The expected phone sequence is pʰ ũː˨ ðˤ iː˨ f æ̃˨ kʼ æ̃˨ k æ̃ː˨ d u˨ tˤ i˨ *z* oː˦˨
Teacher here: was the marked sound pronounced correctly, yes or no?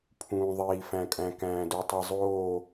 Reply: no